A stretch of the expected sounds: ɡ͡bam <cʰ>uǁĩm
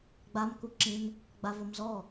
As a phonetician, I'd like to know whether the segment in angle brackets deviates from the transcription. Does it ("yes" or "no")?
yes